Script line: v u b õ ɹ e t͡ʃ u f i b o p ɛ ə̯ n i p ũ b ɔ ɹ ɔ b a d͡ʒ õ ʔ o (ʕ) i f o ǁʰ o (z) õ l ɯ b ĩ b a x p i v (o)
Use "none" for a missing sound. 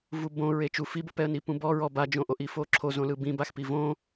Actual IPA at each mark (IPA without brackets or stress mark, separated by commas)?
ʔ, z, õ